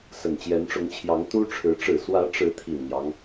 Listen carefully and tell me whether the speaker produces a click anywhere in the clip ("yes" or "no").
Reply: no